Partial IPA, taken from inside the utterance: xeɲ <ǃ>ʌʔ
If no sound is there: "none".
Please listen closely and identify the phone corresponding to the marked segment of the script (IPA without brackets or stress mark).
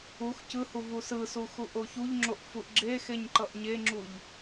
ǃ